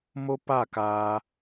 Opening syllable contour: high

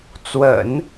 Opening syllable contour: low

